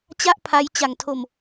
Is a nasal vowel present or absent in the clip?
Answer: absent